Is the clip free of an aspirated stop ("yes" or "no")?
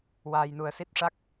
yes